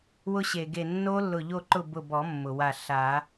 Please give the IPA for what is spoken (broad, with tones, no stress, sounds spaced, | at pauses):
w ʊ˦˥ ɕ e˩ ɡ e˧˩ nː o˦˥ lː ʊ˧˩ ʎ o˥˨ ǃ ʊ˥˨ b ʊ˧˩ b ɔ˨˩˦ mː ʊ˩ w a˧˩ ɬ a˨˩˦